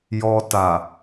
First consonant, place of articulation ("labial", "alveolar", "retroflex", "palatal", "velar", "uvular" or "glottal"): palatal